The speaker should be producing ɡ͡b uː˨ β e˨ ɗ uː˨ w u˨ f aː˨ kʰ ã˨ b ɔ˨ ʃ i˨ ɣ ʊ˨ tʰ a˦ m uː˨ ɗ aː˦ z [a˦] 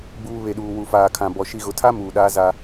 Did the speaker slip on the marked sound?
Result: no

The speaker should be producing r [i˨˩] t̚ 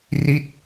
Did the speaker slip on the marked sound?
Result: yes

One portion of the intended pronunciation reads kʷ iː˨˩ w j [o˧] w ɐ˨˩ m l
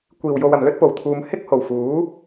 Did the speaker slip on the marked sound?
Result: yes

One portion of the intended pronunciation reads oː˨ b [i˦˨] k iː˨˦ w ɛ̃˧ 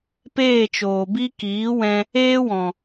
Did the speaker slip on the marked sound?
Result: yes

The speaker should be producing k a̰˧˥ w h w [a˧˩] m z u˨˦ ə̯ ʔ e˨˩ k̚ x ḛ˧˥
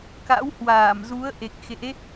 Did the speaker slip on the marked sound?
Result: yes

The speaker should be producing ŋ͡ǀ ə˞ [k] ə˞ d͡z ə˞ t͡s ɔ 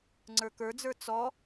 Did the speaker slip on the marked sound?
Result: no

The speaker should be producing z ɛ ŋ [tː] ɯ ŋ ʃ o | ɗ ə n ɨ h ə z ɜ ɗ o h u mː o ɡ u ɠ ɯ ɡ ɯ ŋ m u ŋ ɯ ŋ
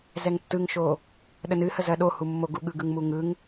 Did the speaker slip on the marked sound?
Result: no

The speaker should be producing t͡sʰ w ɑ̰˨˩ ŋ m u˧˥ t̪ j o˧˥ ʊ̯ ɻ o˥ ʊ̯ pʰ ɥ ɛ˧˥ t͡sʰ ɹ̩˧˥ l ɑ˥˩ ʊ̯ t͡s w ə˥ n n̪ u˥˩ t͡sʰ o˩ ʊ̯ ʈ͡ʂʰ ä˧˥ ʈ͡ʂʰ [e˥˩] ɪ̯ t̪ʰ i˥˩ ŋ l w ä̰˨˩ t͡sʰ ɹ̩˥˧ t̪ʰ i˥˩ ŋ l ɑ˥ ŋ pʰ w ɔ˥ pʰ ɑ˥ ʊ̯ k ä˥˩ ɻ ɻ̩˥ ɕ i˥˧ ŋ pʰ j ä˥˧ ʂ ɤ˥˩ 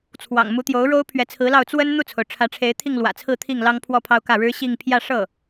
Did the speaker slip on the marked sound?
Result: yes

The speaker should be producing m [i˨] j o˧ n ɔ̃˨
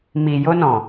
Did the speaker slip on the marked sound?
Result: no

